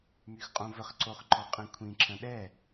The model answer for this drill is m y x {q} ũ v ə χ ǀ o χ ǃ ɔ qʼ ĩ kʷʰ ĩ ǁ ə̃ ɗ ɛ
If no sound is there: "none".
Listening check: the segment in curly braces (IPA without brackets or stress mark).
qʼ